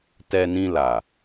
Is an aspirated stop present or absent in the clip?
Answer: absent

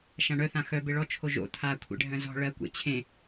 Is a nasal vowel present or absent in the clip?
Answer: present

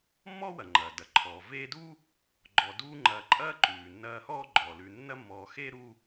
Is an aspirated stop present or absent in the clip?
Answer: present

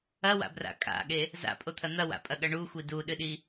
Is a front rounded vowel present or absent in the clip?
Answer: absent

